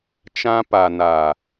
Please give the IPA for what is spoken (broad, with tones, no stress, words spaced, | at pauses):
t͡ʃã˦pa˨naː˨